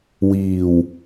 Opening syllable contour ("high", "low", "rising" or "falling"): low